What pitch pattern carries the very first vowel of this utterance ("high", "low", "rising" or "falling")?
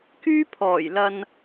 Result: high